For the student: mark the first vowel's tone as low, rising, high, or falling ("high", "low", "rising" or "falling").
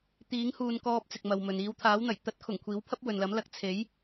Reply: rising